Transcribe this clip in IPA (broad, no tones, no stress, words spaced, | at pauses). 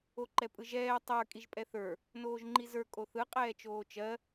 oǃɛpʼɯʒɛː tˤə˞ kʼiʒpʼɛθə˞ | noːʒŋ͡ǃizə˞ kʼoθɯ qʼɛːt͡ʃoːt͡ʃɜ